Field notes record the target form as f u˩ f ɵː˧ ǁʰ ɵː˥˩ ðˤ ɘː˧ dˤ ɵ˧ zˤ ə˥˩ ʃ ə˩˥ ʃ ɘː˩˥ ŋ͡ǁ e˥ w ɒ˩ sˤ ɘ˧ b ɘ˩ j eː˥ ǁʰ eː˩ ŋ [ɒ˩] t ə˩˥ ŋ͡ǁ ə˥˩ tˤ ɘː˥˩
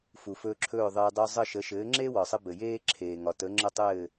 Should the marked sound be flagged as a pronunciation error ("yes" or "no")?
no